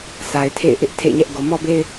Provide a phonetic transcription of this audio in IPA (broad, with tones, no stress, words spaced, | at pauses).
sa˨ɪ̯tʰḛ˦˨ɪ̯ ʔɪ˦ʔ tʰḛ˦˨ɪ̯ɲɛ˦ʔ ɡo˨mɔ˦be˦ɪ̯